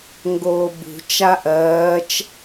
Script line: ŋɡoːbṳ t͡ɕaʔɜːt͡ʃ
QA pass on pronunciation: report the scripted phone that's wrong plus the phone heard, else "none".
t͡ɕ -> t͡ʃ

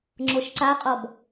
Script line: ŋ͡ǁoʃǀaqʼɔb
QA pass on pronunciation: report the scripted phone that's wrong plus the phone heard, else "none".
none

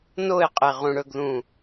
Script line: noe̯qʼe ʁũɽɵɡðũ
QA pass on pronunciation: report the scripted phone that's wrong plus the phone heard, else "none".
none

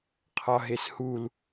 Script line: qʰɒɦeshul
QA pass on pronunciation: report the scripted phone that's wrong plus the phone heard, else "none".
none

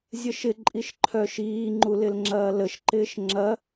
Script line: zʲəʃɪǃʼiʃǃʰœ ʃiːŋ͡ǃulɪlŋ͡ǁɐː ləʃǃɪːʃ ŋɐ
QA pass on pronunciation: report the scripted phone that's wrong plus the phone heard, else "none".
ŋ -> ŋ͡ǁ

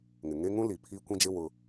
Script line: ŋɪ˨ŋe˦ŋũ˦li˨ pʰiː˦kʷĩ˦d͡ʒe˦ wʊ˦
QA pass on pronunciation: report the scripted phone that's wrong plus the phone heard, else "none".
none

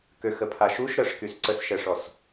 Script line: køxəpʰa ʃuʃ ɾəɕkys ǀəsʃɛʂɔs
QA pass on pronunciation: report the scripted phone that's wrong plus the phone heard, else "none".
ɕ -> ʂ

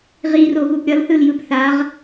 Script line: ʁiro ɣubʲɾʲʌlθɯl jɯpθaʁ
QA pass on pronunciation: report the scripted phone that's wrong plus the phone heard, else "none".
bʲ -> b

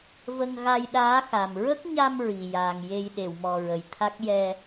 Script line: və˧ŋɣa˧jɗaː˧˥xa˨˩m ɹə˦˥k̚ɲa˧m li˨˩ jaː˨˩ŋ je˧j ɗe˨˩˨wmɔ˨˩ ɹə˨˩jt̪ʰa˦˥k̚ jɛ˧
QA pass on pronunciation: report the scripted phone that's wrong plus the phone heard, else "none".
l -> ɹ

